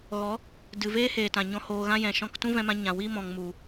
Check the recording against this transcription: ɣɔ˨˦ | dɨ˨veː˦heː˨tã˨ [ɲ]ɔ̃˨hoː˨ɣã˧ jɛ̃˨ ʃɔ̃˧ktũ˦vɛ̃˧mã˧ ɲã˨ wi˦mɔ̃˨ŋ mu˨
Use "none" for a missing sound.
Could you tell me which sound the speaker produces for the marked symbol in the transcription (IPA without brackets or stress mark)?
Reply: ɲ